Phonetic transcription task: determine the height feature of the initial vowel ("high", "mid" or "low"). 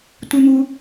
high